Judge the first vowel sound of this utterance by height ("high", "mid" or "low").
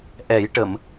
mid